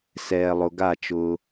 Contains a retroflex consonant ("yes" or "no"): no